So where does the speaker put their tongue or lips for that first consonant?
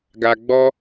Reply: velum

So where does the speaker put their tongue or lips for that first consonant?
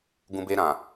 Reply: velum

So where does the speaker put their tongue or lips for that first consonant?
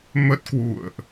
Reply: lips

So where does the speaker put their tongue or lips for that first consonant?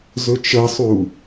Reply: tongue tip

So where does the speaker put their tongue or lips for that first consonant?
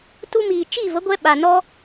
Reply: tongue tip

